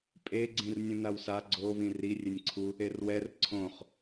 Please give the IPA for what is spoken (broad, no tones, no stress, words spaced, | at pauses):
pʼe ɡ͡ǀĩrnʲũnawsa ɡ͡ǀo βĩri rʲenʲǀʰu | erwɛr ǀʰõχ